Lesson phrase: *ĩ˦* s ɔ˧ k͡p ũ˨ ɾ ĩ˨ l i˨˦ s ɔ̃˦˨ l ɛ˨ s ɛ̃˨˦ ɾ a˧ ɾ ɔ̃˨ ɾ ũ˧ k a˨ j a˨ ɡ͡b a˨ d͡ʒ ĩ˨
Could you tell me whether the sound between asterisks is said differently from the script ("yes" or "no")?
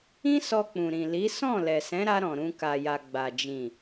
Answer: no